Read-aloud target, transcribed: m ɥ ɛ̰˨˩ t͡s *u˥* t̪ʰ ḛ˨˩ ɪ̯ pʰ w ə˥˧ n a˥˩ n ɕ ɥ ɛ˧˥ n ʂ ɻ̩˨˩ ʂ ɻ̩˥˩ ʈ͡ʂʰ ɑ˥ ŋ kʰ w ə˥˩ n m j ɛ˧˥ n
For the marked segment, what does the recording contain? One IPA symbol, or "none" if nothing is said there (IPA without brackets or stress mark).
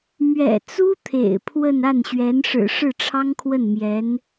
u˥